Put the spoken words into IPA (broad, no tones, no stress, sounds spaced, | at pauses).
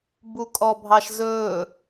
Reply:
b u kʼ ɔ bʱ ɑ ʃ z ɵː